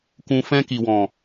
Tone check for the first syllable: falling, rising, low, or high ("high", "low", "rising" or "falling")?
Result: low